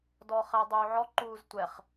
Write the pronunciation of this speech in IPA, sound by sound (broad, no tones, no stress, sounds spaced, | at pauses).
d ɔ χ ɛ dˤ uː ʕ ɔ ǃ uː z tʷ ɛ χ